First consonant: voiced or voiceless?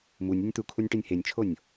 voiced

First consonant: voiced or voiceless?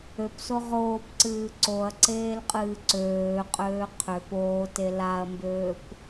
voiceless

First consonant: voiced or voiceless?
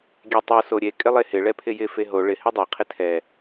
voiced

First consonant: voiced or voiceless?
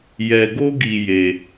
voiced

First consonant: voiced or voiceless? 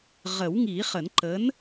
voiced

